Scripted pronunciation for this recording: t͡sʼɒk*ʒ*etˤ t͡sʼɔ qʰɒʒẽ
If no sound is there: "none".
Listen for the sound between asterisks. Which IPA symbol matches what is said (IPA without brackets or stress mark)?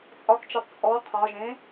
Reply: t͡ʃ